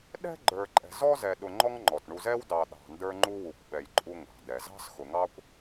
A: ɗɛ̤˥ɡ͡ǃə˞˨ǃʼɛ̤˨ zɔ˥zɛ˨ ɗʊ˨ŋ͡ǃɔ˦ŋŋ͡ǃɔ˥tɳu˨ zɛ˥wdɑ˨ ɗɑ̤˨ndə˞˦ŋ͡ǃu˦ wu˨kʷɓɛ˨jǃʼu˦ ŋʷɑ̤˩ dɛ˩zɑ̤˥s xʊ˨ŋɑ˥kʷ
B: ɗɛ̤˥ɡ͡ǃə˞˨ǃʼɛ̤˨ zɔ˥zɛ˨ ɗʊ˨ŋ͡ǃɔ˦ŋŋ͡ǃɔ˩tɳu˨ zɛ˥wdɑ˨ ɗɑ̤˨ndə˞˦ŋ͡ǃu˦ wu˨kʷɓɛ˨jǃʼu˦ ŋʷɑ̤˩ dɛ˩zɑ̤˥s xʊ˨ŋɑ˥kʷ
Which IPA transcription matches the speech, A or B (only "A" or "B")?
B